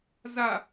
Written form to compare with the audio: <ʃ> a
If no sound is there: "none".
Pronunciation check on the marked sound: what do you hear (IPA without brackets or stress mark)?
z